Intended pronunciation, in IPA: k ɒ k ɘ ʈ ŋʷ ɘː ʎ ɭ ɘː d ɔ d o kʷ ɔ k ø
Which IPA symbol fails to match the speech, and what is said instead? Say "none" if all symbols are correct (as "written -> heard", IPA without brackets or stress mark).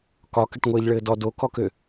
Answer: kʷ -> k